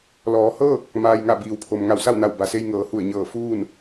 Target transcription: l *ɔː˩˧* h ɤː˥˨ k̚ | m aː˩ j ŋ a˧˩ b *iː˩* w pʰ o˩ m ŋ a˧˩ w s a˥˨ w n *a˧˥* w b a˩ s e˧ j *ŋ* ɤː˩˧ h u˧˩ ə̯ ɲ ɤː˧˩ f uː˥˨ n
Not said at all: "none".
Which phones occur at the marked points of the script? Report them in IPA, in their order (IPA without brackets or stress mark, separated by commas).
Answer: ɔː˩˧, iː˩, a˧˩, ŋ